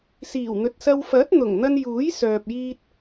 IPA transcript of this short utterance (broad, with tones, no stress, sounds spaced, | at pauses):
s iː˨˩ w n̪ ɵ˨ t̚ s ɐ˧ w f ɐ˨˥ t̚ n̪ ʊ˨˩ ŋ n̪ ɐ˧ n j uː˨˥ j s œː˨ p̚ j iː˧ t̚